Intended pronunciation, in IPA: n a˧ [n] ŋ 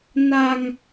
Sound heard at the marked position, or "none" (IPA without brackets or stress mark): none